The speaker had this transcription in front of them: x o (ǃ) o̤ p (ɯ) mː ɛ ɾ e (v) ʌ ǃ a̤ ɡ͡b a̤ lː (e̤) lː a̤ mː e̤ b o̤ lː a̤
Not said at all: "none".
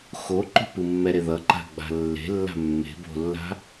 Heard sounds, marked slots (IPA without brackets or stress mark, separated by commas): ǃ, ɯ, ð, e̤